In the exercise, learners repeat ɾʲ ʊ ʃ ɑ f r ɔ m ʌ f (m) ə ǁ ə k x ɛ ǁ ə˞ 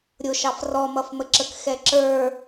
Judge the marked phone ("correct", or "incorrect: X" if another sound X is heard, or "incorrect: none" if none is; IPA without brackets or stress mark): correct